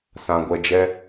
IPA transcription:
sã˨ɡʷɛ˧d͡ʒɛ˦

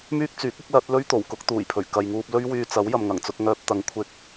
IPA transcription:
myː˥k̚t͡syː˨˥k̚ʊ˥k̚lɐ˨˥t̚ lɵ˥ɥt̪o˨˩w kʊ˥k̚t̪uː˨˩jpʰɵ˨˩ɥ kɐ˨jŋuː˧p̚lɵ˥ɥ wyː˧t͡sɐ˨˥w jɐ˨mŋɐ˨˩ŋt͡sʊ˧k̚ŋœː˧p̚ t̪ɐ˧ŋ kʷʰɪ˧k̚

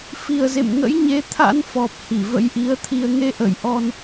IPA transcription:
fi˨˩ə̯zḛ˧˨m ŋə̰˧˥jɲe˨˦t̪ʰa̰˧˥n fɔ˨˩p̚ hi˧˩və̰˧˥jʔi˨˦ə̯t̪ʰi˧ə̯ ŋe˧ʔə˧˩jʔɔ˧n

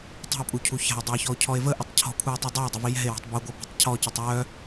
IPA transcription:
tˤə̤o̯pʼucʰu ça̤o̯dˤoe̯çɔo̯cʰɔe̯ vəʔətˤ cʰɔ̤kʷʰae̯tˤi dˤao̯dˤəvi jɛ̤e̯wɔ̤tˤ buɡʷœbɛ̤tˤ cʰɔcətˤ jœ

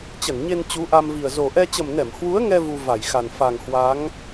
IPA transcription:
t͡ɕə˧˩nɲe˧n t͡ɕu˨˦ʔa˧mvi˨˩ə̯ zo˨˩ʔɛ˧ t͡ɕə˨˩mnɛ˧˩m hwu˨˦ə̯ŋɛ˧ vu˧va˧˩jxa˨˩n fa˨˩ŋhwa˨˦ŋ

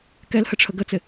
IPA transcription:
kɛlhəʈ͡ʂʰə ɡət͡sɪ

